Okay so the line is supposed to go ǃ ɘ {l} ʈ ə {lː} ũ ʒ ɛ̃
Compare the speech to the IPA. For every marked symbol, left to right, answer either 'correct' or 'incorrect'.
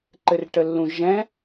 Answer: incorrect, correct

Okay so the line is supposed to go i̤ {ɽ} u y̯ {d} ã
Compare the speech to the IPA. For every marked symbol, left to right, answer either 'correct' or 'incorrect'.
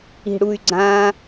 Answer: correct, incorrect

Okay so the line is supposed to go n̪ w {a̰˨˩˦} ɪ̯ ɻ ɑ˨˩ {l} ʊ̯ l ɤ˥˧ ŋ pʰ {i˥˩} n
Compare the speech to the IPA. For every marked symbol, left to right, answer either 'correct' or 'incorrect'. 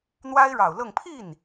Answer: incorrect, incorrect, correct

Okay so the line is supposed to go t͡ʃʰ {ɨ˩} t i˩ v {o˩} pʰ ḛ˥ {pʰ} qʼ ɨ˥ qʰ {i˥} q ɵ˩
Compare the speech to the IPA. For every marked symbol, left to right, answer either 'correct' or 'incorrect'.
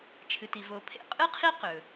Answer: correct, correct, incorrect, correct

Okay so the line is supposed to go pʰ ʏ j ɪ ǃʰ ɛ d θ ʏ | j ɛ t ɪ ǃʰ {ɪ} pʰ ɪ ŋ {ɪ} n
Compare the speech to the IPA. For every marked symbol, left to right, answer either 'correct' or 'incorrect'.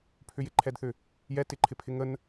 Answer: correct, incorrect

